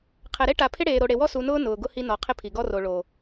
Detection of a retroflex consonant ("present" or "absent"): present